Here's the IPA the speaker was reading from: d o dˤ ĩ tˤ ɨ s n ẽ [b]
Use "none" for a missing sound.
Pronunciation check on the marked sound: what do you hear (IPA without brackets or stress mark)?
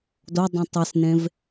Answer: v